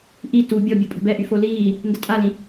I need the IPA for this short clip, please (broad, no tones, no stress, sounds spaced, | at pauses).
ʔ i t u bʲ ɔ bʲ u pʼ ə̤ b ɛ ʔ y f o l iː | n d ə tʼ a l ĩ